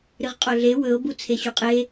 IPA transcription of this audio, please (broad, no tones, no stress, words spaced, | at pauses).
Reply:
ɾɨʁqʼoɮe wɵo̯bu t͡sʰeɕuqʼe